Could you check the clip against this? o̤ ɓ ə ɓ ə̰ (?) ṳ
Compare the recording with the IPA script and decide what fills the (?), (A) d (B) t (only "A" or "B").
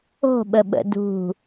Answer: A